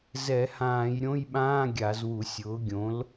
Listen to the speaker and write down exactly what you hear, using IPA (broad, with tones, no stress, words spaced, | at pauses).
zɛ˧˩˧hãː˧˩˧jɾʲõ˧˥˧jɓãː˧˥˧ ɡʲa˧˩˧zwu˧˩˧sʲʊː˩˥ ɡʲõ˩˥l